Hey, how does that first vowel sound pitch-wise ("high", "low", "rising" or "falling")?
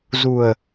low